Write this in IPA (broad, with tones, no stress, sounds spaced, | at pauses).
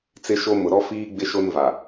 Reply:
t͡s ɪ˦ ʃ o˦ m ʊ˨ ɾ ɔ˦ f iː˦ ɡ͡b ɪ˦ ʃ o˦ n v a˨